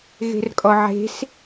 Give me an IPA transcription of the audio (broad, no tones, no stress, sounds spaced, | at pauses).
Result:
ɣ e̤ r kʼ ɔ ʕ e̤ s